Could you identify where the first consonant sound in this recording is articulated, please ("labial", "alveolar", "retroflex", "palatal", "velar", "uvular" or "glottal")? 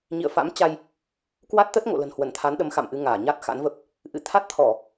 palatal